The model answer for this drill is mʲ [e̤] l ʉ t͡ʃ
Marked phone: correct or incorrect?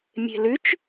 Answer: correct